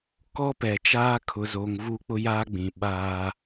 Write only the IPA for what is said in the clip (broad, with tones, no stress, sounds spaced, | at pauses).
k ɔ˦ p ɛ˨ t͡ʃ aː˦ kʰ ʊ˨ z oː˨ ŋ v u˦ k͡p ʊ˦ j aː˦ ɡ͡b ĩ˨ ɓ aː˦